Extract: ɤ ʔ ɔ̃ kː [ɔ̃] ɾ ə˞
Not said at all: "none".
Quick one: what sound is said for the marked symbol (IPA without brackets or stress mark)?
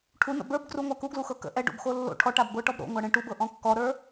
ɔ